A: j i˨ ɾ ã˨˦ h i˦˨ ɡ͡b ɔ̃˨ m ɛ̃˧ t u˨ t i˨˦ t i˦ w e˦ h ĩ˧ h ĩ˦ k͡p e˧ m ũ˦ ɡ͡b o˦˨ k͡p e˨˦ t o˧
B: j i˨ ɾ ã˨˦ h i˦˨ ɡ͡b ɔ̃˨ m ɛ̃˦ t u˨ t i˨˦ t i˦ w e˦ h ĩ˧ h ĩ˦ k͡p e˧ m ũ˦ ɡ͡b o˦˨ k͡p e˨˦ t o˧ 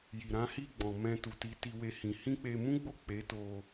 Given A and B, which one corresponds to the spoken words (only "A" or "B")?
A